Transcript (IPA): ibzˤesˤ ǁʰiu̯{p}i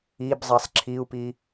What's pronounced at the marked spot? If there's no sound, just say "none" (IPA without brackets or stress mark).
p